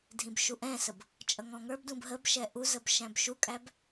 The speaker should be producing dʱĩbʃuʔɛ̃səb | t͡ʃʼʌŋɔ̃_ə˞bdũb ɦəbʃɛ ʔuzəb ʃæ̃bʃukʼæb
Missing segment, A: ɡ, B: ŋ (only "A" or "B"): B